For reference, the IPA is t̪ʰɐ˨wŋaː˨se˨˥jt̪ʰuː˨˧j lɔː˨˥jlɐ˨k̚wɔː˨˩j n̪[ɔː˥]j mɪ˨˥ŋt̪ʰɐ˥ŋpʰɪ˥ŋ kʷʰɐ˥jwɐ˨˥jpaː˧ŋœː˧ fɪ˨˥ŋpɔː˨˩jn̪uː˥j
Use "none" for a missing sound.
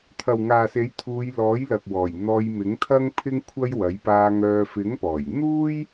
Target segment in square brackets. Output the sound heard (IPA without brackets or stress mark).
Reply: ɔː˧